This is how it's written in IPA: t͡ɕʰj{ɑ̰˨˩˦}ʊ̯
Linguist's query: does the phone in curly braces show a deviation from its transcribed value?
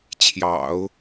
no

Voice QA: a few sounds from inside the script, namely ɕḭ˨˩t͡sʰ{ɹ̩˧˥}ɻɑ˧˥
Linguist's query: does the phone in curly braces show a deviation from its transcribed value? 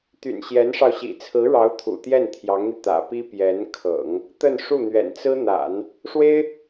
no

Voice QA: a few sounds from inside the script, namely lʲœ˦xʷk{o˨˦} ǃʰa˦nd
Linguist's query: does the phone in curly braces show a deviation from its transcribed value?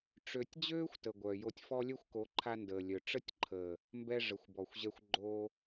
no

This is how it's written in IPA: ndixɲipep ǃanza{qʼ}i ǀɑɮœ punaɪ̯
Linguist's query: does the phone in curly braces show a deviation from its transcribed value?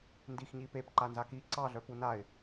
yes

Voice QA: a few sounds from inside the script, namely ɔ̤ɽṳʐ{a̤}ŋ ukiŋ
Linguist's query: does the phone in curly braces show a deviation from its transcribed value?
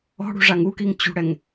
yes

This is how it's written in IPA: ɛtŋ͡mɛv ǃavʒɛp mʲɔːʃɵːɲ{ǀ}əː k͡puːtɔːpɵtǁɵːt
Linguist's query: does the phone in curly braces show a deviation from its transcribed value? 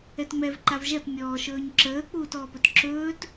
yes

